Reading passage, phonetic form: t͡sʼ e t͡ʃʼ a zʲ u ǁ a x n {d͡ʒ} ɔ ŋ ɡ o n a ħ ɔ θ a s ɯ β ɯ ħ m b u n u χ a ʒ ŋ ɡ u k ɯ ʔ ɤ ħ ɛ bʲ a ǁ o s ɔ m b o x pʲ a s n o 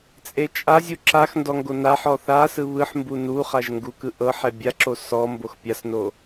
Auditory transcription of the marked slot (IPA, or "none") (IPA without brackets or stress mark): d